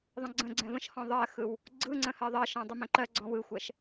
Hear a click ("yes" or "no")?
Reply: yes